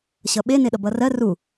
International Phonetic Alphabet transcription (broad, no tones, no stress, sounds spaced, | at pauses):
ɕ ʌ ɓ e n e ɗ ʌ b ʌ r ɜ r u